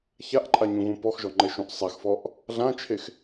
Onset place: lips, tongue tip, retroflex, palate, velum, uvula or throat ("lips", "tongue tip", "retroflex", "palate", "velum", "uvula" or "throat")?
palate